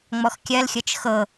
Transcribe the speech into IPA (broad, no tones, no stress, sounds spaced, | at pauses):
ŋ͡m ɔ x kʲ ɜ l xʲ ɤ t͡ʃ x ɤ